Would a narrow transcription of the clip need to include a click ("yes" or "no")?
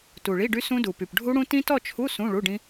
no